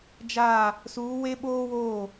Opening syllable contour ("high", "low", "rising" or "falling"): falling